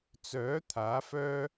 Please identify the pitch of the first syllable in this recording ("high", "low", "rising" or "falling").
rising